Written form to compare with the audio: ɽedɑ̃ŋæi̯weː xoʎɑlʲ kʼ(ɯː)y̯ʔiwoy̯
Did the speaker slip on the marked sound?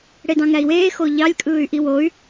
no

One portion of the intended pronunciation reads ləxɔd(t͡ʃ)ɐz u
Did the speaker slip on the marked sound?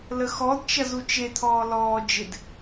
no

